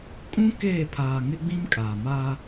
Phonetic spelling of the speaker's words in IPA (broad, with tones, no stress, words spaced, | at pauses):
kʼũ˦ keː˦˨pʰaː˨ŋɪ˦ɡ͡bĩ˦m kʼaː˨ma˦